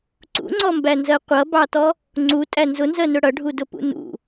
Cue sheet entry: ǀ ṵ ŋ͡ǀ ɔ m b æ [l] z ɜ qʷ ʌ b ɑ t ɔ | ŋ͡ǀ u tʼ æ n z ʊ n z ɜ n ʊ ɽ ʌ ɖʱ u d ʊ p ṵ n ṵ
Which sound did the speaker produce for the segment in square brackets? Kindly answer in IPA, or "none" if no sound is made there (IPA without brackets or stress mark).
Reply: n